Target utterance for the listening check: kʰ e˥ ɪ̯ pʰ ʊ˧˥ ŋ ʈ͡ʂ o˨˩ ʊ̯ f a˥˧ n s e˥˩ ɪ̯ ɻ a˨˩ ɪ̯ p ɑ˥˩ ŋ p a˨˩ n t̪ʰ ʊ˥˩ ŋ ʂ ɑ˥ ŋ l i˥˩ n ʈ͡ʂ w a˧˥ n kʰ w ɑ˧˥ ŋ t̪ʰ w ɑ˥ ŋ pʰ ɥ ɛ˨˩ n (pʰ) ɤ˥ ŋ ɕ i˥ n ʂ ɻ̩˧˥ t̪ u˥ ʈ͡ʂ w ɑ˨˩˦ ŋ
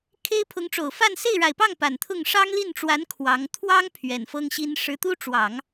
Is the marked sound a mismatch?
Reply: yes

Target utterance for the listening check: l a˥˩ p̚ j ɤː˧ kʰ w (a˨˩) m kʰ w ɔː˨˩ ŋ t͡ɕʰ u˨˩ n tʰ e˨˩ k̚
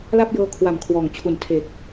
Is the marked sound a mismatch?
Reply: yes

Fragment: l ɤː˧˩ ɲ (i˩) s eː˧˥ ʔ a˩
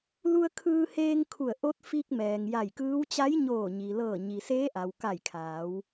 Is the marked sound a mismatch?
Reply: no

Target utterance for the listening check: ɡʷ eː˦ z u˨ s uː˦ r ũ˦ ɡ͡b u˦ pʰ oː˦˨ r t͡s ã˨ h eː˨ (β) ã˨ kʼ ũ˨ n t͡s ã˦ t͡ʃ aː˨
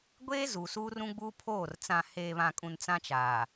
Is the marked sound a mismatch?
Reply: no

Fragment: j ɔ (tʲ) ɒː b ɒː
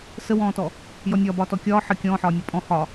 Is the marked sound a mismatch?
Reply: yes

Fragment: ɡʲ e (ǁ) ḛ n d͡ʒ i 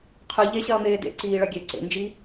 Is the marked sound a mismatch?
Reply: yes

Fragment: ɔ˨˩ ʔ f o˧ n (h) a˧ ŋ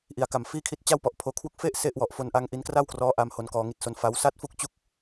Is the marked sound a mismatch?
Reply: yes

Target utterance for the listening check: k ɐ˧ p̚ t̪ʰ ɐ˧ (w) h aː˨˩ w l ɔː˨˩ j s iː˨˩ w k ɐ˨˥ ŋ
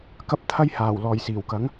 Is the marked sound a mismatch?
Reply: yes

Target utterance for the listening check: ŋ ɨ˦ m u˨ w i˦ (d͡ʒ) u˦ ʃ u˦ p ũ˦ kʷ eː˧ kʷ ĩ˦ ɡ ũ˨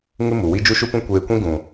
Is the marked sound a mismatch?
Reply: no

